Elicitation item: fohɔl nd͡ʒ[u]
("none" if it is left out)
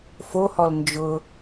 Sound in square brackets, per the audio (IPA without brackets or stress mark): ʊ